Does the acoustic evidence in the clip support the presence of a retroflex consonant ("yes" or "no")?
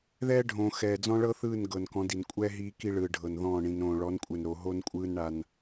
yes